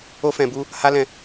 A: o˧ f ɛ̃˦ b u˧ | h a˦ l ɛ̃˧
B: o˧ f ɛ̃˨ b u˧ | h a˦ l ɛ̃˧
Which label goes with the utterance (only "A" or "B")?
B